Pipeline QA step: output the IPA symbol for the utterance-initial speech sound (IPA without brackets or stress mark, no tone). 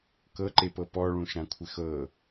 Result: k